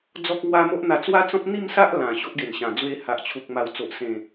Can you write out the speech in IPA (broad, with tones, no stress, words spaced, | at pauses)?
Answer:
d͡zɔ˦k̚ŋwa˦ mo˦ʔ n̪a˧t͡swa˦t͡sɔ̃˦p̚ n̪i˥˧msa˦ʔ lã˨˩ ɕo˦ʔɡe˨˩nɕã˨˩ d͡zwe˧ha˨ʔt͡ɕʰu˨k̚ ma˨˩wt͡so˨ʔsẽ˨˩